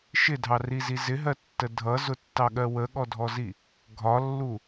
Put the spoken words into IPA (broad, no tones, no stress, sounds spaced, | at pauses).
ʃ ɪ dʱ ɑ r i z i z ɪ ɦ ɜ tː ə dʱ ʌ z ʊ tː ɑ ɠ ɜ w ə ɠ ɔ dʱ ɔ z i | ɡʱ ɒ lː u